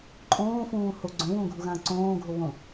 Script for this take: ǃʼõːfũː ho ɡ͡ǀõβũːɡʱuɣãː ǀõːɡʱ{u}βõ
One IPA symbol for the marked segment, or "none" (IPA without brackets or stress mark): o